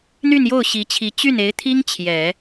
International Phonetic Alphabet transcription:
n̪ y˥˧ n j o˥˩ ʊ̯ ɕ i˧˥ t͡ɕʰ i˧˥ t͡ɕ y˥˩ n e˧˥ ɪ̯ t̪ʰ i˥ ŋ t͡ɕʰ j ɛ˨˩˦

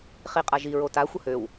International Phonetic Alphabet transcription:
χ i qʼ a ʒ i ɹ o t a xʷ ə h ø w

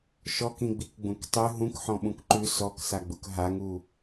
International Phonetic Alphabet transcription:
ʃ ɔ k ĩ ɡ͡b i k ɡ͡b ũ k tˤ ʉ ɦ ũ k ħ ɔ̃ ɓ ũ k ǃ ʉ s ɔ k s a ɡ͡b u k ɦ a ŋ u

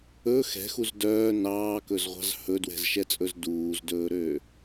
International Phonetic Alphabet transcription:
ɵ x ɛ̤ x u z d œː n ɑː k ɵ z ʁʷ ɑ̤ z h ɵ d w ɛ̤ z ʃ ɛ t͡sʼ ɵ z d uː z d ɵː ɾ ø

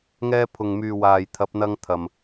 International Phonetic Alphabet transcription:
ŋ ɛː˧ pʰ ʊ˨ ŋ m yː˨ w aː˨ j t̪ʰ ɐ˨˥ p̚ n̪ ɐ˧ ŋ t̪ʰ ɐ˨ m

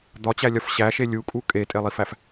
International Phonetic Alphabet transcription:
d̪ ɒ t͡ɕ æ lʲ ɒ f ɕ æ ʃ e lʲ u kʼ u kʼ e tʼ e lˠ i f æ f

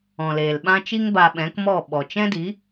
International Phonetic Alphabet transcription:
ɔ̃˨ l eː˨ l ɓ ã˦ t͡ʃ i˦ ŋ b a˧ ɓ ɛ̃˨˦ k m ɔ˦˨ ɓ ɔ˨ t͡ʃ ɛ̃˦ d i˨˦

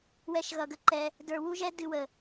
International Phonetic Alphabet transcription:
w ɛ˦ ʃ ɣ ʌ˧ ɡ ə˧ ǃ ɛ˧ | d ə˞˧ w u˦ ʒ ɛ˦ d ɨ˧ w ə˨

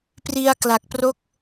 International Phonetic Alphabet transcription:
p r i˧ a̯ k l a˨˩ k̚ p r o˥˩ k̚

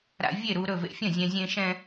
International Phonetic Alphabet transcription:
ɾ a̰˧ vʲ e˥˨ ɾ u˧ ɾ ɵ˥˨ v ḛ˧ fʲ ɐ̃˥˨ zʲ ɛ̃˧ zʲ ẽ˧ ʃ ɛ̃˧

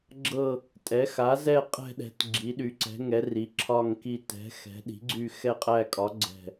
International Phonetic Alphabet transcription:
ɡ͡ǁ ɤ˦˨ | tʼ ɛ˩˥ x a˩˥ z ɛ˦˨ qʼ ɛ̤˦˨ ɗ ɛ̤˩˥ t ɡ͡ǁ i˩˥ ɗ y˩˥ ǀ ɛ̤˩˥ ŋ ɛ˩˥ r i˩˥ ǁʰ ɒ˦˨ ŋ k i˦˨ t ɛ̤˩˥ x ɛ̤˩˥ ɗ i̤˩˥ ɡ͡ǀ y˦˨ x ɛ˦˨ qʼ æ˦˨ kʼ ɒ˩˥ ɡ͡ǀ ɛ̤˦˨

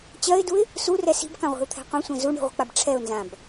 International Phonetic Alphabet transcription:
t͡ɕ ɜ ɪ̯ d u ɪ̯ | s u r ɛ s i̤ b k ã ʁʷ i̤ ʊ̯ t̪ʰ ɛ̤ qʷ ẽ sʷ ɛ̃ z u ɳ i̤ ʁʷ ə̤ k͡p a b ʈ͡ʂʰ ɛ ʊ̯ n z ã b

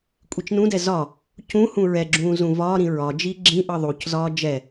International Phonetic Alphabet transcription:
kʷʼ i t͡ʃ n ũ d ɛ z ɒ | c ũ h ũ ɹ ɛ ɡ͡ǁ ũː z ũ v ɒː ɾ ĩ ɹ ɒ d͡ʒ iː ɡ͡ǁ ĩ ʔ ɤ ðˤ u c z ɒː d͡ʒ ɛ

